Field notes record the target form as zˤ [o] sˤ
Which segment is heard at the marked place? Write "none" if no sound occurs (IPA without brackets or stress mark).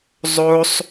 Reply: o